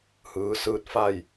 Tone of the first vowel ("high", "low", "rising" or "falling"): rising